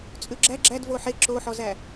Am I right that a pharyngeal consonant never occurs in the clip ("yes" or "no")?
no